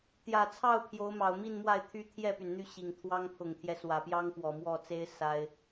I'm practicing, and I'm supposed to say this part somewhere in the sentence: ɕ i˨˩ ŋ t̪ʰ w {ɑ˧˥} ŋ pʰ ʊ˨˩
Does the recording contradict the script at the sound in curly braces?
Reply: yes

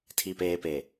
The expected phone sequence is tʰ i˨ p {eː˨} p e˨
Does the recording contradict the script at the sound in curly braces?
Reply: no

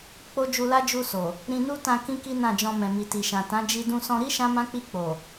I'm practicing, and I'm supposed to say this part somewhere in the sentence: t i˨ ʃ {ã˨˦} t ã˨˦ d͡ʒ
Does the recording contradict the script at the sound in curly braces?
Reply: yes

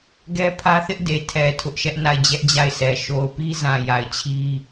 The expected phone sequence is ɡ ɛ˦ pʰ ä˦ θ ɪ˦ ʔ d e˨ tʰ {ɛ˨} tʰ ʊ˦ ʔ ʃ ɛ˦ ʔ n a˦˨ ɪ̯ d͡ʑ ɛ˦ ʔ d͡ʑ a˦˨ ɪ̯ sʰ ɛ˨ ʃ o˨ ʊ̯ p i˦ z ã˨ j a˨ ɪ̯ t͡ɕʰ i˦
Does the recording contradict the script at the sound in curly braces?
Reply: no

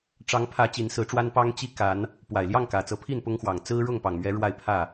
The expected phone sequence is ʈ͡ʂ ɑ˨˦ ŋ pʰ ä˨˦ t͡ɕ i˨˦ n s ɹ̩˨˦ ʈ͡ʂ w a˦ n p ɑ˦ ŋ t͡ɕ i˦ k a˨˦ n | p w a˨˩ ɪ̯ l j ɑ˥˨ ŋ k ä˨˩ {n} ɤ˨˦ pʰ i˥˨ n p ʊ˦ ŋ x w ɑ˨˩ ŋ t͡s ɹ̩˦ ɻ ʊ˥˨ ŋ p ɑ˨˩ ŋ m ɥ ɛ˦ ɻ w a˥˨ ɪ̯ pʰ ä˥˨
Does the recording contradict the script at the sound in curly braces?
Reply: yes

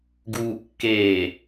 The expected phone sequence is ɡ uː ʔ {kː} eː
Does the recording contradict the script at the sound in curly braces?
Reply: no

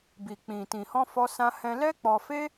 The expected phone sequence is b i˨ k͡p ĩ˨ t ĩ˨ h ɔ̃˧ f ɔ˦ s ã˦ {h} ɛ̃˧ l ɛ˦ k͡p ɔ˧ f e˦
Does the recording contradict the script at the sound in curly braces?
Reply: no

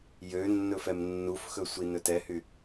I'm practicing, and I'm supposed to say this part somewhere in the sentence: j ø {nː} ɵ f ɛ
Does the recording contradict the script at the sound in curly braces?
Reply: no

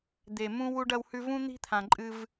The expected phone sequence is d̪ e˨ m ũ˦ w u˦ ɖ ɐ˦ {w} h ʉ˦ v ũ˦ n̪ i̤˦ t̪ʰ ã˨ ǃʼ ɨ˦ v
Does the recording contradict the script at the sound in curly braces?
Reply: no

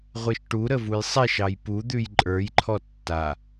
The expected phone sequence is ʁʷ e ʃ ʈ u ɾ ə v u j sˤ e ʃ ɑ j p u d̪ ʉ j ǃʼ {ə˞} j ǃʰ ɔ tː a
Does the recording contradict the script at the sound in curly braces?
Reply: no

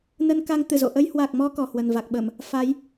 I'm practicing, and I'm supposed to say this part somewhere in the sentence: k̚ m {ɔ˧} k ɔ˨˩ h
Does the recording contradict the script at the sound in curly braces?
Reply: no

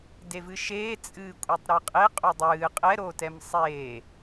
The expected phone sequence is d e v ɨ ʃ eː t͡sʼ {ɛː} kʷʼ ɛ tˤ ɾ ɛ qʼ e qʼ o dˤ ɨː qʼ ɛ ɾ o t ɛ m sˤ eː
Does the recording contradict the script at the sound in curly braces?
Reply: yes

